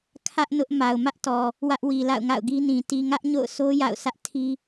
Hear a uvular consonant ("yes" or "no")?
no